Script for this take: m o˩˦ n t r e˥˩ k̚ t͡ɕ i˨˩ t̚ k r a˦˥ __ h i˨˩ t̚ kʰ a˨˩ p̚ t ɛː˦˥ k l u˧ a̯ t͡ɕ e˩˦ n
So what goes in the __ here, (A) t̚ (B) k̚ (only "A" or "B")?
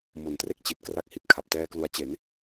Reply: B